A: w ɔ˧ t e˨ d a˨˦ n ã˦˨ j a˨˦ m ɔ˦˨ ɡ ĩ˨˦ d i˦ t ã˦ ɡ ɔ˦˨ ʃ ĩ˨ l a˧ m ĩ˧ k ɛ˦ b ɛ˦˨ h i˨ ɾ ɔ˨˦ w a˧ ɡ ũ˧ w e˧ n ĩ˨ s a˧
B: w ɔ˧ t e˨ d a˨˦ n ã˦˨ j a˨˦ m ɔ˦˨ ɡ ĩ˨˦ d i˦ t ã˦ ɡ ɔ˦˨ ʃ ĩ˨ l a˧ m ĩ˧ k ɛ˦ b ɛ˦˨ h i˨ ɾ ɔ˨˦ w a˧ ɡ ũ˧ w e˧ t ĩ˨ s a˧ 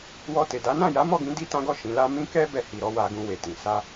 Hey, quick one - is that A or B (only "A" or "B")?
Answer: B